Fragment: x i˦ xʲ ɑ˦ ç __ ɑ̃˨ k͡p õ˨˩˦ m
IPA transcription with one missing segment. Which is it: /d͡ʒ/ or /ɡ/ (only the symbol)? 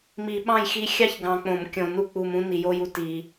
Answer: ɡ